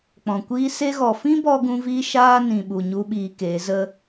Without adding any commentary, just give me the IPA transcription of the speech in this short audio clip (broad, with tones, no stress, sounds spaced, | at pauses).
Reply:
k͡p ɔ̃˨ kʷ iː˦ s e˧ ɣ ɔ˨ f ĩ˦ b ɔ˧ ɡ ũ˦ v iː˦ ʃ aː˦ n ĩ˨ ɓ u˨ ɲ u˦ ɓ iː˧ k eː˨˦ z ə˦